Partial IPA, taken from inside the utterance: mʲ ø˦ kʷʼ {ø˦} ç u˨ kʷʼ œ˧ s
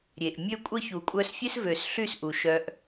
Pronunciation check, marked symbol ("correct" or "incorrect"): incorrect